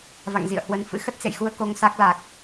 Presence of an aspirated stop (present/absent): absent